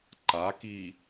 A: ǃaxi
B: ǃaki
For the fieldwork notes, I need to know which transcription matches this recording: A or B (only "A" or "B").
B